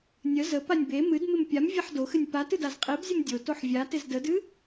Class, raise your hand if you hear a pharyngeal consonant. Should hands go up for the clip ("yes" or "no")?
yes